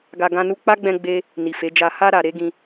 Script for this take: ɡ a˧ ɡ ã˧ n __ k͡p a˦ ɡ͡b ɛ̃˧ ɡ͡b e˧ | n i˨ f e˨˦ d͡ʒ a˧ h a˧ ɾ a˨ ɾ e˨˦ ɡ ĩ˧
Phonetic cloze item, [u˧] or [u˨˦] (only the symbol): u˧